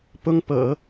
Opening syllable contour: high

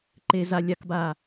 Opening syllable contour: low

